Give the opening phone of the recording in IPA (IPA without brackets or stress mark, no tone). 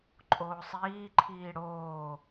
ǃʼ